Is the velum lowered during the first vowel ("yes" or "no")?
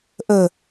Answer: no